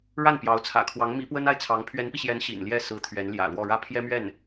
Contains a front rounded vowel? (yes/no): no